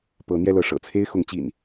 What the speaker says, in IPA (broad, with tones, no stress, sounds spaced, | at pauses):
p ɤ˨˦ n̪ j ɛ˧ l ɤ˨˦ ʂ ɤ̰˨˩ t͡sʰ e˦ ɪ̯ x ʊ˨˦ ŋ t͡ɕ ḭ˨˩ n